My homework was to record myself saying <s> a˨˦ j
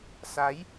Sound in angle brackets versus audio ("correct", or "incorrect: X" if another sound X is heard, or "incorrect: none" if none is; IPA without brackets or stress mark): correct